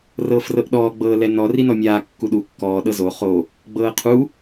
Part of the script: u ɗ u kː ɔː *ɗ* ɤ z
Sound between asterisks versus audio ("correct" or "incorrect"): correct